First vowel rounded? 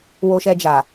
yes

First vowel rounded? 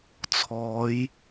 yes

